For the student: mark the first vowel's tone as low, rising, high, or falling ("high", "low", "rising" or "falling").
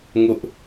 high